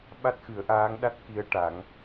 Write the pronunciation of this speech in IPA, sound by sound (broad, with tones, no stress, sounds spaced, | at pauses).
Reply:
ɓ a˦˥ t̚ x ɨ˨˩˦ ə̯ ʔ aː˧˥ ŋ ɗ a˦˥ t̚ k i˧˥ ə̯ ʈ a˨˩˦ ŋ